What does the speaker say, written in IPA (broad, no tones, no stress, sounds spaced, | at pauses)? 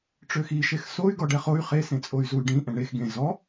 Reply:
ʈ͡ʂ ø x i ʃ e x s o y̯ ɡ ɔ ɖ ɛ χ o y̯ χ e s ẽ t͡sʼ o y̯ z u y̯ ɖ ĩ ʔ ɛ̃ ɳ e x ɡ ẽ z ɔ